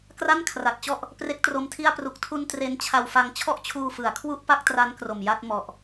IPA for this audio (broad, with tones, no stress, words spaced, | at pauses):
kra˥˩nkʰra˨˩t̚t͡ɕɔ˥˩ʔ | pre˦˥k̚tro˧mtʰi˥˩a̯ pru˨˩k̚tʰu˧n tre˦˥nt͡ɕʰa˧wfa˧ŋ t͡ɕʰɔ˥˩ʔt͡ɕʰuː˧fɯ˩˦a̯kʰwu˥˩ʔ pa˥˩k̚tra˦˥n kro˨˩mja˥˩t̚ mɔ˦˥ʔ